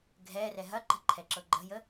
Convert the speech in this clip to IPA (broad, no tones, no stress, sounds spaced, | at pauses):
ɡʱ ɛ r ɛ ɦ ɐ ǃ ə̤ ǃʰ ɛ ǁ ɤ ɡ͡ǃ ə̤ j ə